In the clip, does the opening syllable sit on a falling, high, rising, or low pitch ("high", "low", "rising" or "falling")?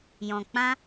low